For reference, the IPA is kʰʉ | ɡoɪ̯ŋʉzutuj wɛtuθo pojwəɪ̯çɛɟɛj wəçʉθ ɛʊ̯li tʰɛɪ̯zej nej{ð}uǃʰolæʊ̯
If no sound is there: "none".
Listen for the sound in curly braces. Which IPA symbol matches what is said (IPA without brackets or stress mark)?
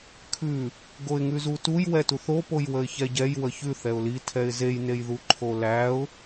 ð